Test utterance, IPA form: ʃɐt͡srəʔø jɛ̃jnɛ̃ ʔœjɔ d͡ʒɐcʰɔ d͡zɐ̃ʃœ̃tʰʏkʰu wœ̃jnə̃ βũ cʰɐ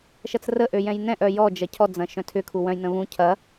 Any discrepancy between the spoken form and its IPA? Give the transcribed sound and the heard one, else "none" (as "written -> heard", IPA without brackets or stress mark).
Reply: none